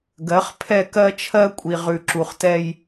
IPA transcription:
ɡ ɜ˨˦ χ pʰ ɛ˦˨ k ɜ˦ t͡ʃʰ ɜ˦ kʷʼ i˨ ʁ ʉ˨ ǁ u˨ χ t ɛ˦ j

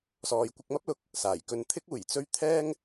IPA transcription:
s ɔː˨ j kʷ ɪ˧ k̚ m ɐ˥ p̚ l ʊ˨ k̚ | s aː˨˩ j k ɵ˧ n t̪ʰ ɪ˥ k̚ uː˨˩ j t͡s ɵ˥ ɥ t̪ʰ ɛː˥ ŋ

